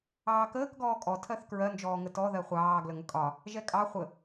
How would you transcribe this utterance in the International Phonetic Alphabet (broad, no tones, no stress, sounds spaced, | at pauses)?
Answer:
ɑː k əː k ɡ ɔː kʼ ɔ tʰ ɜ θ k ɹ ɜ n d͡ʒ ɔː ŋ ə t ɔ ð ɜ χʷ ɑː ɡ l ə ŋ ə kʼ ɒ | ʒ ɛ kʼ ɑ χʷ ə